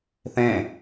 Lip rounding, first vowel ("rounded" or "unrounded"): unrounded